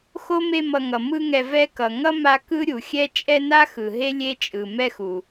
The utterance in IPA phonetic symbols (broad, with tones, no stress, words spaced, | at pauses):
xo˥me˦mʌ˨ŋʌ˩ mɯ˦ŋɛ˨vɛ˦kʌ˩ ŋʌ˥ ma˦ kɯ˥ɾʲu˩xʲɛ˥ t͡ʃʼɛ˦na˥xɯ˩ ɦe˥lʲe˦t͡ʃʼɯ˩ mɛ˦xu˩